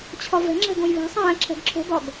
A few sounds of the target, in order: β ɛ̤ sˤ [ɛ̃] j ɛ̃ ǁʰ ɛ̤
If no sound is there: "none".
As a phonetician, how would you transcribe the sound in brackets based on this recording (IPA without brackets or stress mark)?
ɛ̃